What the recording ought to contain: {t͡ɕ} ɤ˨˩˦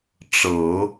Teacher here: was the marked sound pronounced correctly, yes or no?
no